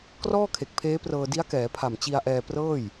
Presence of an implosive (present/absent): absent